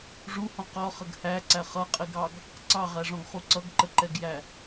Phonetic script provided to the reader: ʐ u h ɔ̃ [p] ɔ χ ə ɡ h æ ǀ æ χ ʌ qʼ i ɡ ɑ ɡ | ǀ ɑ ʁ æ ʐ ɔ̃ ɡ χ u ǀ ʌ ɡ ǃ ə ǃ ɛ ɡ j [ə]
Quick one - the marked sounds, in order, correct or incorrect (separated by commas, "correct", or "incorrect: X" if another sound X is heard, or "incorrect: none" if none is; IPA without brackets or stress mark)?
incorrect: q, incorrect: æ